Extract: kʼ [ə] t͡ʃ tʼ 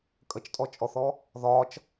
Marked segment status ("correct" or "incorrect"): correct